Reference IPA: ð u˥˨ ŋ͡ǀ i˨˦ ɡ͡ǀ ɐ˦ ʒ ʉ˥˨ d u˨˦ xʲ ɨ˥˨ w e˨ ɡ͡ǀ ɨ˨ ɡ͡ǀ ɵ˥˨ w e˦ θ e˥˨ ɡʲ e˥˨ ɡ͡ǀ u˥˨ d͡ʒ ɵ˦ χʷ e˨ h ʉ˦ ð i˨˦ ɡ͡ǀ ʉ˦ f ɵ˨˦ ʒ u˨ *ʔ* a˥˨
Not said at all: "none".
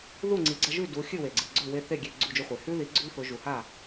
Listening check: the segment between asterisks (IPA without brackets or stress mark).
h